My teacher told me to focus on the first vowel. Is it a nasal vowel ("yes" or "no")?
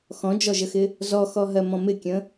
yes